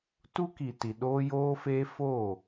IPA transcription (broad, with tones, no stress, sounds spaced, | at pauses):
t u˦ k i˨ t i˨ ɗ oː˦ j oː˦ f eː˦ f oː˦˨